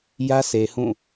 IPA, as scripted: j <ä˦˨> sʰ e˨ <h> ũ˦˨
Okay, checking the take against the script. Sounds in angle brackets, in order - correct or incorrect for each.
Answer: incorrect, correct

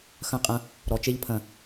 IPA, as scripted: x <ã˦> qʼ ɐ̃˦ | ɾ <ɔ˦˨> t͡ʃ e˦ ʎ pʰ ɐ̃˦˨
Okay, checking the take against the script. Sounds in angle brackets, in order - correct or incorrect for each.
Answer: incorrect, incorrect

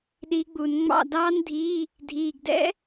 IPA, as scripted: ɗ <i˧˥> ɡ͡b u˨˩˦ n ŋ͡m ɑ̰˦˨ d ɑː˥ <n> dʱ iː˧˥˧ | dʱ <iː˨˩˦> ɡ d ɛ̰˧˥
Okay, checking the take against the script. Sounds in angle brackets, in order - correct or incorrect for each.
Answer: correct, correct, incorrect

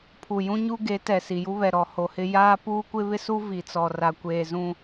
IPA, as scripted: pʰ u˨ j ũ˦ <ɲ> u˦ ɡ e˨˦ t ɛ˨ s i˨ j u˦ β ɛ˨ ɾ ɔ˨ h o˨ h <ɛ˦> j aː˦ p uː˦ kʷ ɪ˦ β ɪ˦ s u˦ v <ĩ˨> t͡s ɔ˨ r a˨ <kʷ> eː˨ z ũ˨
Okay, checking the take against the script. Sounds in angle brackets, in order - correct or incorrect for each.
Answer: correct, incorrect, incorrect, correct

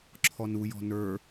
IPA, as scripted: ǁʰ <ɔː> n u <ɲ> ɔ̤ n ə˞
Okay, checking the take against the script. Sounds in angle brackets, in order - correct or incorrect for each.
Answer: incorrect, incorrect

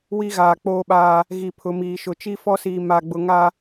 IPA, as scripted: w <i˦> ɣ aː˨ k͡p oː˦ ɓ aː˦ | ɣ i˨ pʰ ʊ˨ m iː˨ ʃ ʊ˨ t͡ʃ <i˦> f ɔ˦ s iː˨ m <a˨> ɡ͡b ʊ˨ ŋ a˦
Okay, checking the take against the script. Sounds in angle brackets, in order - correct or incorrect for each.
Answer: correct, correct, correct

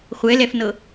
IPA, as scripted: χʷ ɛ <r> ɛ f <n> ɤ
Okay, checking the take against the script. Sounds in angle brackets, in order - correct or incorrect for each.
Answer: incorrect, correct

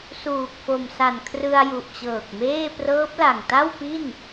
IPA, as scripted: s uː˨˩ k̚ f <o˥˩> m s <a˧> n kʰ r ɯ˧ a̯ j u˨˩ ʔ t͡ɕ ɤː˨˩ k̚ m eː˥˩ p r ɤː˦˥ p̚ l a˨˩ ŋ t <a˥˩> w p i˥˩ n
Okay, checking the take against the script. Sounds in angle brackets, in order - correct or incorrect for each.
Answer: incorrect, incorrect, correct

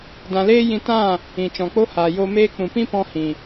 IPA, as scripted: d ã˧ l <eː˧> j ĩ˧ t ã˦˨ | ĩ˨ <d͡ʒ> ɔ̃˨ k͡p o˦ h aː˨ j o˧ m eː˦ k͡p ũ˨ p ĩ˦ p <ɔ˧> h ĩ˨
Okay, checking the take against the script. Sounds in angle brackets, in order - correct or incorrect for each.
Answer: incorrect, incorrect, incorrect

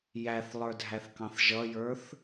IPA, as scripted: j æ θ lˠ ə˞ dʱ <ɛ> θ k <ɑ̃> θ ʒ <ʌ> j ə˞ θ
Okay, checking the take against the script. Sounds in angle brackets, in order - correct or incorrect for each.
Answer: incorrect, correct, correct

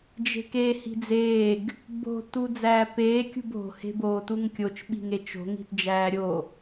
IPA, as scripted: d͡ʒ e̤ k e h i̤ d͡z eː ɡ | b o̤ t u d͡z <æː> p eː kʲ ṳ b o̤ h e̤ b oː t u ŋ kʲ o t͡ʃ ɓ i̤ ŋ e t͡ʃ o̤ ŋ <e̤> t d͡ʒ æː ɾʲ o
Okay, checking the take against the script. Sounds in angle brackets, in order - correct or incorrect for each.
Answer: correct, incorrect

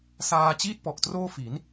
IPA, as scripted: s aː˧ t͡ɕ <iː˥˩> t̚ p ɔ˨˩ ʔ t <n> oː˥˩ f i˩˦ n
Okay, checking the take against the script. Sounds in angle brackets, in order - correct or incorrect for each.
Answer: correct, incorrect

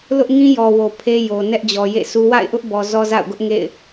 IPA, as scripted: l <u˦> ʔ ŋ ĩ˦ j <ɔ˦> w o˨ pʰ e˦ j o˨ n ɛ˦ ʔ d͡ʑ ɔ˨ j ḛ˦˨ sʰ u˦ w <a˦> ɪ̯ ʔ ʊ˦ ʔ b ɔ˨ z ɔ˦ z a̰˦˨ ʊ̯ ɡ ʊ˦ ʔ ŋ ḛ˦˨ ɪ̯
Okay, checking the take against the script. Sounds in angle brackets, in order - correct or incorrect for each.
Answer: incorrect, incorrect, incorrect

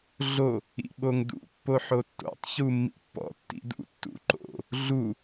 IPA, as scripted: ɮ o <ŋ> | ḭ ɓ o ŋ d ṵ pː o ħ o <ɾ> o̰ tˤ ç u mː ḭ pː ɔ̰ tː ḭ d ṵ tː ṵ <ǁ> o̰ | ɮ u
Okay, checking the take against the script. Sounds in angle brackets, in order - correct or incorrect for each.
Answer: incorrect, incorrect, incorrect

